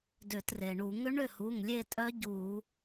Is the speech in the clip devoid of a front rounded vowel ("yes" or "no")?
no